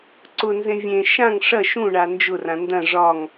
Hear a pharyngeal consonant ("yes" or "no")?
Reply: no